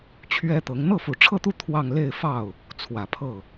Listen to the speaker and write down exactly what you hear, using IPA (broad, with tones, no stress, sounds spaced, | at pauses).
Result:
t͡ɕʰ ɥ ɛ˥ t̪ ɤ˧˥ ŋ n̪ ɤ˥˩ f u˨˩ ʈ͡ʂʰ ɤ˥˧ t̪ u˥˧ t̪ʰ w ɑ˥˧ ŋ l e˥˧ ɪ̯ f ɑ˥˩ ʊ̯ | t͡sʰ w ä˨˩ pʰ ɤ˥˩